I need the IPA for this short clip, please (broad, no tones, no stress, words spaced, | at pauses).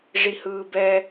ʐihɯːbɛ